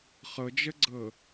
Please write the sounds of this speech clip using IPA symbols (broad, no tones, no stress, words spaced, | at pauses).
χɤd͡ʒəɡ͡ǀɤ